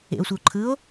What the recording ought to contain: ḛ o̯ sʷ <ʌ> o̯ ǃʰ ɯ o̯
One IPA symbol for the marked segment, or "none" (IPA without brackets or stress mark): ʌ